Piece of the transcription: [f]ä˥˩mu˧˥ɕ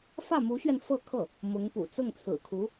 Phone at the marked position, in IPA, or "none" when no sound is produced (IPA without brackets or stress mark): f